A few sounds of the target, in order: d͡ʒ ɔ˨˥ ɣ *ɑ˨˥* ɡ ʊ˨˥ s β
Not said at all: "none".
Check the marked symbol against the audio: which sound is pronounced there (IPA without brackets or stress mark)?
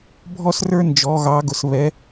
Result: ɑ˨˥